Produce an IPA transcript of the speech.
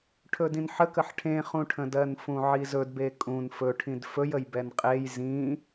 ʈʰ ɵ d ĩ n ħ ə k ə ħ ʈʰ ẽ χ ũ ʈʰ ə̃ d ɜ n f ũ ʕ i z ɵ d b e kʼ ũ n f ɵ ʈʰ ĩ d f ɵ j ə j b ɛ n qʼ e j z ĩ

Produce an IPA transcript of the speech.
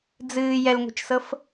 d͡z ɨː j ɛ l ŋʷ e̤ t͡ʃ s ɤ f

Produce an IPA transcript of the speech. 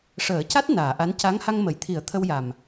ʂ əː˨˩˦ c a˦˥ t̚ n aː˨˩˨ ʔ a˧˥ n c a˧˥ ŋ h a˧ ŋ m ə˨˩˨ j t̪ʰ i˨˩˦ ə̯ t̪ʰ ə˧ w j a˨˩ m

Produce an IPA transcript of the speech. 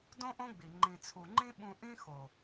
d õ˦ ʔ õ˦ ɡ͡b i˨ ŋ͡ǃ ĩ˨ t͡sʰ u˨ ŋ͡ǃ ĩ˦ ɓ ũ˧ ʔ ĩ˦ x o˨

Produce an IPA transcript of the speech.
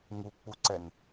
ŋ u k͡p u ǀ ɛ n

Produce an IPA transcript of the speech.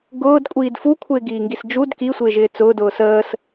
ɡ ʊː d kʷʼ iː d f u kʷʰ ɪː ɡ iː ŋ ɡ i s d͡ʒ u d k i sʷ ɪː ʒ ɪː t͡s ʊː d ʊː s əː s

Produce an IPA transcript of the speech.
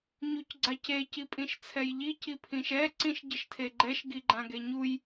ɲ u c ɡ͡ǀ a c e c i pʼ ĩ ʃ t͡sʰ ɛ j ʎ i c i pʰ ĩ ʃ ɛ ǀ ĩ ʃ ɟ ɘ ʃ tʰ e ɡ͡ǃ ɛ ʃ ɡ i ɡ͡ǃ ã ɡ e ɲ u j

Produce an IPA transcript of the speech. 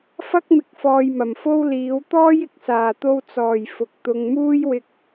f ɐ˥ k̚ m ɪ˨˥ k̚ f ɔː˨ j m ɐ˨˩ m f o˥ w l iː˨˥ w t̪ ɔː˥ j ɪ˨ k̚ s aː˨˩ t̪ o˧ w t͡s ɔː˨˩ j f ʊ˨˥ k̚ t̪ ʊ˨ ŋ m uː˥ j w ɪ˧ k̚

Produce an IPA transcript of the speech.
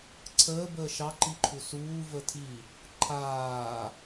ǀʰ əː b əː ʃ ɑ ǃ i ǃʰ u s uː v ə tʰ i | ǃʰ aː

